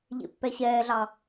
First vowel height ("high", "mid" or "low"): mid